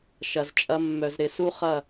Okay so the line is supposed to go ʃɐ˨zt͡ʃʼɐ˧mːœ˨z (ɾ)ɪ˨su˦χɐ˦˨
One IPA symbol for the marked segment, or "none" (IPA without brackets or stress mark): ɾ